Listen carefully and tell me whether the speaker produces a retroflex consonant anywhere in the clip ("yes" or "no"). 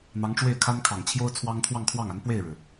yes